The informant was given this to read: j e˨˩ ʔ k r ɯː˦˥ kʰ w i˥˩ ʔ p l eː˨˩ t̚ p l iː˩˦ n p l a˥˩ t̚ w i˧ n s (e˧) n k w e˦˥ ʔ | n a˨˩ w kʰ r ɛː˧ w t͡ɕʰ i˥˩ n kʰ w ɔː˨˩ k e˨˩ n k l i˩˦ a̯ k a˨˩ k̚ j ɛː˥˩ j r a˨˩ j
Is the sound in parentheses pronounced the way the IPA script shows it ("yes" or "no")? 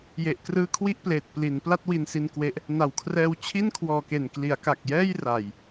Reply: no